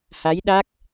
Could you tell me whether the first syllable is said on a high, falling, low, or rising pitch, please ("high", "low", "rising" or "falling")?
rising